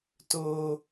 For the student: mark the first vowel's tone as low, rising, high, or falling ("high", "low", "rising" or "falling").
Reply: high